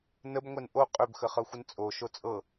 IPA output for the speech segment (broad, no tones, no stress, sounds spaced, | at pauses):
n ə b ŋʷ ɛ n ʔ o qʼ ø b x ə χ ɤ xʷ ə n t͡sʼ o ʃ o t͡sʼ ɤ